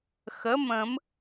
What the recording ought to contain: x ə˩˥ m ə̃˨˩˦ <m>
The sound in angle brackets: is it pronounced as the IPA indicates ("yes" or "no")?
yes